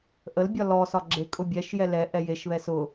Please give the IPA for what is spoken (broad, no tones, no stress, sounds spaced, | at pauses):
ʔ ə l bʲ ɒ l ɔ s ɒ ɡ͡ǁ e kʼ ʊ bʲ ɛ ʃ j ɛ l ɛ ʔ ɛ j e ʃ β ɛ s ʊ